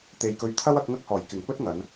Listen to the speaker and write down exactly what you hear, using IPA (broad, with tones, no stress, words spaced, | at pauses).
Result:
t̪e˨jkɵ˧ɥ t̪ʰɐ˥w ɐ˨˥k̚ŋɐ˥k̚hɔː˨˩j kɪ˨˩ŋpɵ˥t̚ ŋɐ˨˧n